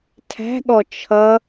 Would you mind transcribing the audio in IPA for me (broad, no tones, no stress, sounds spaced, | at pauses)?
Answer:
tʰ æ̤ ɠ ɔ t͡ʃʰ ʌ